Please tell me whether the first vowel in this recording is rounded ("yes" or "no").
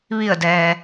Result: no